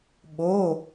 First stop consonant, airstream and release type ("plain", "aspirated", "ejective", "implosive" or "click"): implosive